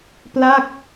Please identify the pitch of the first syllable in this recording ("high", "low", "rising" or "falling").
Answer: falling